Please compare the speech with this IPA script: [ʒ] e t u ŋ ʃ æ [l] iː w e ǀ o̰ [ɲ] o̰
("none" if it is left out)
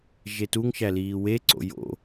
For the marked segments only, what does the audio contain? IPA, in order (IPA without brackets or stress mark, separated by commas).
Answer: ʒ, l, j